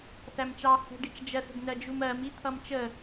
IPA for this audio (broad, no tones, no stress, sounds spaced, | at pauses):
θ æ m t͡ʃ ɑ h ə̤ ɖ i t͡ʃ d͡ʒ ɜ θ ə̤ ɡ n ɜ d͡ʒ u m ɜ m i t̪ʰ ʌ m t͡ʃ ə